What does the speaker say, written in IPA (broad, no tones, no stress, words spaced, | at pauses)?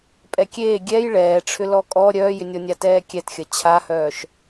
pʼɛkʲeː ɡʲɛj ɭɛːʈ͡ʂʰʏ lɔkʼɔ ɾʲœːjʏnʲɔnʲa tɛːkʲɛtxʲɐ t͡ɕʰahœːʃ